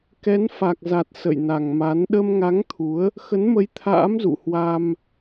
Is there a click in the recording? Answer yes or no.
no